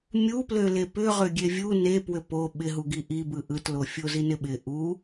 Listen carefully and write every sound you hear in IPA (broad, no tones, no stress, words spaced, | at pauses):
mʲupløle pʏ ʁøɡʲevʲu nepwʏ po ɓɪɦuɡi ʔibɯ ʔɯtlo fʲozinɪɓɪ ʔu